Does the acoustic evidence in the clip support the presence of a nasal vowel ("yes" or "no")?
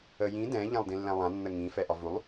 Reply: yes